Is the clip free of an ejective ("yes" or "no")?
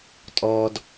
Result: no